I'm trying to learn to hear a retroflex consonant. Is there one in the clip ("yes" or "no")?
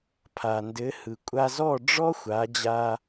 yes